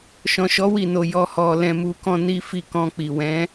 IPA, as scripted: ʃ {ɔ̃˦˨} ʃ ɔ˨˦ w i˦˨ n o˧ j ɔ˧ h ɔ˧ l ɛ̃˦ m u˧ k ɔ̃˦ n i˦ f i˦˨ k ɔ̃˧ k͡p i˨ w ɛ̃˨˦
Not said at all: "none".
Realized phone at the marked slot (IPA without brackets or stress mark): ɔ̃˨